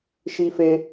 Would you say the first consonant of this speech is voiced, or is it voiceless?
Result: voiceless